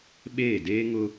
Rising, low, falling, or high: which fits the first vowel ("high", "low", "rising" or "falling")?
falling